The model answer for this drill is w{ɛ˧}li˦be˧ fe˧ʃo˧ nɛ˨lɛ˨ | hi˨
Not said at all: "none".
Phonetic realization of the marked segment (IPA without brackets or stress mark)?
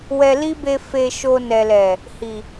ɛ˧